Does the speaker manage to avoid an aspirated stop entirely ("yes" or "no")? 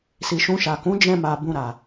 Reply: yes